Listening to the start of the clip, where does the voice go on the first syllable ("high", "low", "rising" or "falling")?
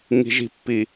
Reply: low